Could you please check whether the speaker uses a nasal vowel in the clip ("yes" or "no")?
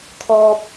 no